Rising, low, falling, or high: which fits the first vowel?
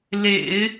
low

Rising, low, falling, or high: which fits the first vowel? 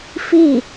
falling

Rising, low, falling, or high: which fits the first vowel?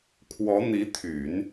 rising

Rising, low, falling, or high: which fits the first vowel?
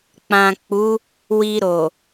low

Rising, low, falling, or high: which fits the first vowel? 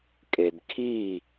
low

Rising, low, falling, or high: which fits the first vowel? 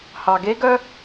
low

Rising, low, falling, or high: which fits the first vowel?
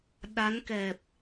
rising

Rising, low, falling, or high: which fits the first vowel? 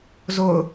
falling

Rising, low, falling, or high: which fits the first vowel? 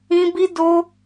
high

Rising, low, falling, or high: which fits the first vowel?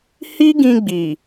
high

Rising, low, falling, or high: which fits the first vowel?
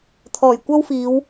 low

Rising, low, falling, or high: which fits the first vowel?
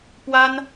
high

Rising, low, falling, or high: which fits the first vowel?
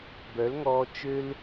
rising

